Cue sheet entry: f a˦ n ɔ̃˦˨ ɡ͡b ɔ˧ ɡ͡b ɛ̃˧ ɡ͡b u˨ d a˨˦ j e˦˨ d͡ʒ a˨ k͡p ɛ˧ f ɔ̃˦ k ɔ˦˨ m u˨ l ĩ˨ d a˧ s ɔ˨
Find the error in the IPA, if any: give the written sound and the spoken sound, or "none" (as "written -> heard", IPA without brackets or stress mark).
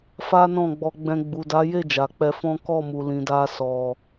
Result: none